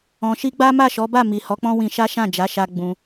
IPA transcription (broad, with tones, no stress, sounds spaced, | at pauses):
ɔ̃˨ ʃ i˧ ɡ͡b a˦ m a˦˨ ʃ ɔ˨˦ b a˦˨ m i˨ h ɔ˨˦ k͡p ɔ̃˦ w ĩ˧ ʃ a˦ ʃ ã˦˨ d͡ʒ a˨˦ ʃ a˧ ɡ͡b ũ˧